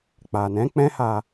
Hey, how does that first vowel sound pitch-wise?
low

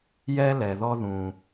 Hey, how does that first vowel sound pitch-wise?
high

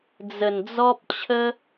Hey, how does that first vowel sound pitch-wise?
low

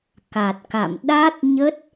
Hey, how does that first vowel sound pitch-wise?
low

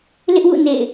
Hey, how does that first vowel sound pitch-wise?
high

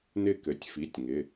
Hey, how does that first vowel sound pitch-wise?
falling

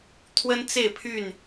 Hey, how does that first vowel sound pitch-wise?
high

